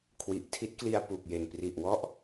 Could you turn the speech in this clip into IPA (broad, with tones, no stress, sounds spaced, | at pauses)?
kʰ w i˨˩ ʔ tʰ i˦˥ t̚ k l i˧ a̯ p u˨˩ k̚ j e˨˩ n p r i˨˩ ʔ w ɔ˥˩ ʔ